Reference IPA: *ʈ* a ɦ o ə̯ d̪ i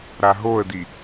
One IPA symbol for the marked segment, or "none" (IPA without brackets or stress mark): ɾ